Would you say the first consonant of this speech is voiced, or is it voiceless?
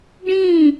voiced